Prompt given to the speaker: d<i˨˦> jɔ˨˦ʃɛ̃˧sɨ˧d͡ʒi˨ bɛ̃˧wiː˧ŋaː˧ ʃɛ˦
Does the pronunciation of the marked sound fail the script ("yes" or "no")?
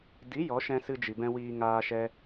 no